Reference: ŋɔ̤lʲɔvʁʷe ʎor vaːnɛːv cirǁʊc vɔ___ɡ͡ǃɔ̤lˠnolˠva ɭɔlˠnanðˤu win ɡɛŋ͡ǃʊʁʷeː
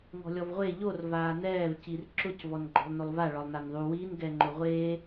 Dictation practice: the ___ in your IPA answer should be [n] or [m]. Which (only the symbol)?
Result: n